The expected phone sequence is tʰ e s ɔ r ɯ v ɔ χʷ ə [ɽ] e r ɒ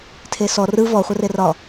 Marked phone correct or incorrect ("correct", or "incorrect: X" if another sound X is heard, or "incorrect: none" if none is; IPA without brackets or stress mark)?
incorrect: r